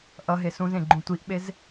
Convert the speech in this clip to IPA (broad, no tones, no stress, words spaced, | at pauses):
ʔʌɦe sũzẽɡ͡ǃũ tʷiʔɓez